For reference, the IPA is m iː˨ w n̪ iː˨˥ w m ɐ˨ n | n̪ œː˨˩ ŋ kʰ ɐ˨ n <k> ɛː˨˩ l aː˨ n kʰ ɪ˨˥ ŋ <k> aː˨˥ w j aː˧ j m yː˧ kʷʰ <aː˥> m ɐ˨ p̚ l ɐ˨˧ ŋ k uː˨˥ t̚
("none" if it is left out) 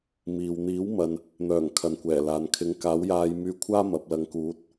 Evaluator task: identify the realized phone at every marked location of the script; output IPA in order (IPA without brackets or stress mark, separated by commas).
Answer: kʷ, k, aː˥